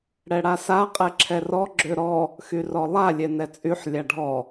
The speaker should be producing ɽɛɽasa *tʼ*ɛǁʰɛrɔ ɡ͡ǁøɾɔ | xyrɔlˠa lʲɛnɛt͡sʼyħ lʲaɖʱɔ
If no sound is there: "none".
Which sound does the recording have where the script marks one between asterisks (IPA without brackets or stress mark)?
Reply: qʼ